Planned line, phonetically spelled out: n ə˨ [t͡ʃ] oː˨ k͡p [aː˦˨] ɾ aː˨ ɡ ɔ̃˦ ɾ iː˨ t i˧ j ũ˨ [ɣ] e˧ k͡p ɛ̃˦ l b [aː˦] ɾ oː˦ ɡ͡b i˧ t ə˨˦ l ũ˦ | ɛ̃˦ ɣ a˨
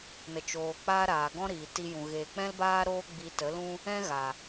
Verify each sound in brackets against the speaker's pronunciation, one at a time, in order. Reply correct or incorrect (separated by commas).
correct, incorrect, correct, correct